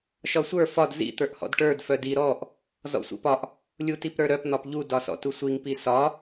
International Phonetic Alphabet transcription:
ʃ ɒ sʷ ə˞ f ɒ d z ḭ t̪ ə˞ ʔ h ɔ̰ d ʈ ə˞ d f œ d i ɾ ɔ ʔ | z ɔ̰ sʷ ḭ p ɒ ʔ | lʲ u t i p ɾ ə˞ ɾ œ p n̪ ɒ p ʎ u d ɒ s ɔ̰ t u sʷ i ŋ p i s ɒ

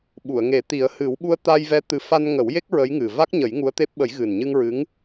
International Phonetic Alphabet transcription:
ɓ u˨˩˨ ə̯ ŋ e˨˩˦ t̪ i˨˩˦ ə̯ h ɨ˨˩˦ w ɓ u˧ ə̯ t̪ a˧ j v ɛ˧˥ t̪ ɨ˧ f a˧ n ŋ ə˨˩˦ w j e˦˥ k̚ ɹ ə˧˥ j ŋ ɨ˨˩ v a˦˥ k̚ ɲ ə˨˩˦ j ŋ u˧˥ ə̯ t̪ e˦˥ p̚ ɓ ə˨˩˦ j ɣ ɨ˨˩ n ɲ ɨ˧ ŋ ɹ ɨ˧˥ ŋ

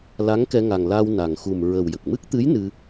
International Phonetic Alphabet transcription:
l a˧˥ ŋ k ɛ˧ ŋ a˨˩ ŋ l a˧ w n a˨˩ ŋ x u˨˩ m ɹ ə˨˩ w j ə˨˩ k̚ m ɨ˦˥ k̚ t̪ ɨ˧˥ j n ɨ˧

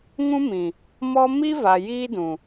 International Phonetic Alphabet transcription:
ŋ ũ˦ m ĩ˨ | m ɔ˦ m i˦ v a˨ j iː˦ d ũ˨

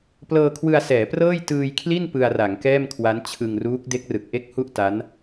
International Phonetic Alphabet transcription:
p l ɤː˧ kʰ w ɯ˧ a̯ s ɛː˩˦ p r ɤː˥˩ j t ɯː˧ j kʰ l i˥˩ n p ɯ˧ a̯ r a˩˦ ŋ k ɛː˥˩ m kʰ w a˦˥ n t͡ɕʰ ɯ˧ ŋ r uː˦˥ k̚ d e˦˥ k̚ r ɯ˨˩ k̚ ʔ e˥˩ k̚ h u˥˩ ʔ t a˦˥ n

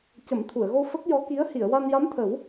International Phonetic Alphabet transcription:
c ə˨˩˦ m t̪ʰ u˨˩˨ ə̯ ɣ o˧ f ə˦˥ k̚ j ɔ˧˥ k i˧˥ ə̯ h i˨˩˨ ə̯ w a˧ n j a˧˥ m t̪ʰ ə˨˩˦ w

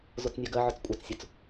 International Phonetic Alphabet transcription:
z o t͡s nʲ a ɡ ɜ ʕ ɔ t͡s kʷʼ a t͡s sʲ o t͡s

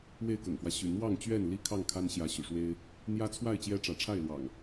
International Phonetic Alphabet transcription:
w e˥˨ ɪ̯ k ɤ̰˨˩ ŋ f w ä˦ ɕ y̰˨˩ n̪ w ɑ˥˨ ŋ t͡ɕ ɥ ɛ˥˨ n l i˥˨ kʰ ɑ˥˨ ŋ kʰ a˦ n ɕ j ä˨˦ ɕ y̰˨˩ ʂ w e˦ ɪ̯ | n̪ j ä˦ t͡sʰ w a˥˨ ɪ̯ t͡ɕ j ɛ˦ ʈ͡ʂ ä˨˦ ʈ͡ʂʰ a˥˨ ɪ̯ l w ɑ̰˨˩ ŋ

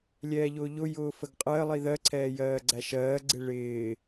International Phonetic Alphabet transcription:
lʲ ɛː ʎ ʊː ʎ ʊ j ʊː f ə ɡ qʼ ɜ lˠ i ð ɜ ǀʰ ɛː j ɜː ɡ͡ǀ æ ʃ ɜː ɡ͡ǀ ɪ ɭ ɪː

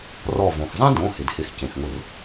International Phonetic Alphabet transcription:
r ɔ˧˩ v õ˩ x zˤ ɛ̃˥ d õ˩˧˩ h ɪ˩ d h ɪ˩˧˩ x c ẽ˩ x ŋ ʊ˧˩ r

